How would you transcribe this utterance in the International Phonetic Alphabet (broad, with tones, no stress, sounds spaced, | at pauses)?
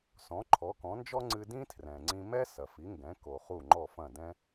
s ɔ̃˩˥ ǃʰ ɔ˩˥ k ɔ̃˩˥ n d͡ʒ ɔ˥ ŋ͡ǀ ɨ˧ d ĩ˥ tʰ r ɛ̃˩ ŋ͡ǀ ĩ˧ m ɛ˥ s ɐ˩ f i˩˥ ŋ ɡ ɛ̃˩˥ k o˩ χ u˥˩ ŋ͡ǃ ɔ˥˩ f ɐ̃˥˩ d ɛ̃˥